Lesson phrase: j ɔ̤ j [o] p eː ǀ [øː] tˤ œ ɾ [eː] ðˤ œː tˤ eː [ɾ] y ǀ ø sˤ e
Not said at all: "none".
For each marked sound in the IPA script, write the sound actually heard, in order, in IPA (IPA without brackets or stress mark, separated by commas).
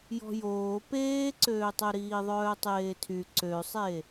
oː, øː, iː, tʰ